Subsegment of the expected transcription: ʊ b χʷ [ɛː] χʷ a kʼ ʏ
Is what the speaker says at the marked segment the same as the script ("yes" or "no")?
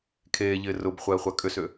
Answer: yes